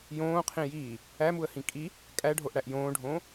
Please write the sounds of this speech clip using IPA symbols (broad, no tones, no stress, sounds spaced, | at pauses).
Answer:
j õː qʰ ĩ j iː | æ m u ə̯ h ĩ kʼ i | kʼ æ ɖʱ o ʔ ɽ æ ʔ j õː ɖʱ õː